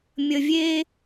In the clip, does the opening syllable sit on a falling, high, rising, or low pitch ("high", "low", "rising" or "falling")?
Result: low